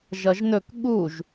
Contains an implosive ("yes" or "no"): yes